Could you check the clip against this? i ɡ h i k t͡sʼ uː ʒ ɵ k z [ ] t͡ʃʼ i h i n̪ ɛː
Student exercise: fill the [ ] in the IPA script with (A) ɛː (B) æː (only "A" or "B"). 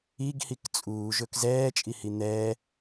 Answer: A